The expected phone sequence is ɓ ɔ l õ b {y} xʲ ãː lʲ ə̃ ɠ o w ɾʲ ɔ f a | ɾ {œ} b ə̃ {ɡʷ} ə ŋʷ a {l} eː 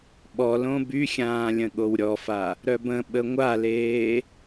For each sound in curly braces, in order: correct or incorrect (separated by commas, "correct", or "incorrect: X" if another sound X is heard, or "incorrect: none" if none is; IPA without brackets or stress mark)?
correct, correct, incorrect: ɓ, correct